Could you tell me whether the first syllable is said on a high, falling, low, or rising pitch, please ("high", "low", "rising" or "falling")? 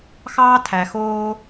high